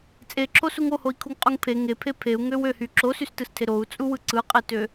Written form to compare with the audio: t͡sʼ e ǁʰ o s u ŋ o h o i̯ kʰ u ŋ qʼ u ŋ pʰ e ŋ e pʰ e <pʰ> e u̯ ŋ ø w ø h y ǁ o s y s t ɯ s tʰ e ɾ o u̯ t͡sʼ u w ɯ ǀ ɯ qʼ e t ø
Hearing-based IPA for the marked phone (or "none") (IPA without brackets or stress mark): pʰ